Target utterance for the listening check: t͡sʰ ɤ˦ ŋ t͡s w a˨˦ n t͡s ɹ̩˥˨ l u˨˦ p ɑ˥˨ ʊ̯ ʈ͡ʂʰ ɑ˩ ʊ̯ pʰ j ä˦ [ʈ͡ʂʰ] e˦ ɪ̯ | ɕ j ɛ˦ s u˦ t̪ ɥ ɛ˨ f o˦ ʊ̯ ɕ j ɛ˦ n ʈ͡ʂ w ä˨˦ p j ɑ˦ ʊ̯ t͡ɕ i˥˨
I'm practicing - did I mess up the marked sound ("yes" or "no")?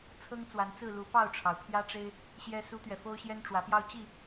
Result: yes